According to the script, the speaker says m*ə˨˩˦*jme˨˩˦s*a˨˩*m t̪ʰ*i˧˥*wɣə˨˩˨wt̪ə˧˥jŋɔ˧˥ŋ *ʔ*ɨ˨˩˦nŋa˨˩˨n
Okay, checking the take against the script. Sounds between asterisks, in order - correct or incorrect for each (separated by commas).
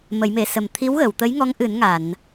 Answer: correct, incorrect, correct, correct